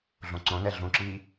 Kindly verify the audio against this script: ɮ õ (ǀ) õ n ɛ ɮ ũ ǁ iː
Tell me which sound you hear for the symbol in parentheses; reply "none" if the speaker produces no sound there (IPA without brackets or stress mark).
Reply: ǀ